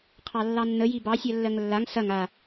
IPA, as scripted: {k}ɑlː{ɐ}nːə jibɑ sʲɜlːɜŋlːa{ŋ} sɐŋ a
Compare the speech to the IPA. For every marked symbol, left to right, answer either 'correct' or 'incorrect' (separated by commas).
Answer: incorrect, incorrect, correct